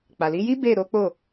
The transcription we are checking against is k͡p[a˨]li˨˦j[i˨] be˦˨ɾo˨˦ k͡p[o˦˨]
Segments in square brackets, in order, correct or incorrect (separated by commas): correct, incorrect, correct